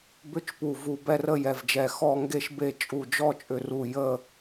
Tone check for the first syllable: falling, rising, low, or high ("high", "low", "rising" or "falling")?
falling